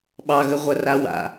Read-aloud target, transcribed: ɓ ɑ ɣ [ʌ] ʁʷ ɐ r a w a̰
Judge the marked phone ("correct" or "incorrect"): incorrect